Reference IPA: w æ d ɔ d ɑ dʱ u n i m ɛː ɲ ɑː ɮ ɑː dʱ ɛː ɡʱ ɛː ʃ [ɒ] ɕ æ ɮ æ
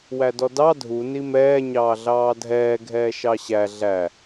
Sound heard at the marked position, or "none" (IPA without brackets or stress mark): ɑ